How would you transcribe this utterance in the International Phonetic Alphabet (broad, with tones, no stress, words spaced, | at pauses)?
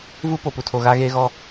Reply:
vu˦po˨pu˨tʰo˨ ɣa˦ɣeː˦ɣɔ˦